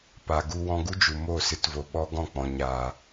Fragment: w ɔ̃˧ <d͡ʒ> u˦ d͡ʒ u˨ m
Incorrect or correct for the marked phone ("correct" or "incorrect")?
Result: incorrect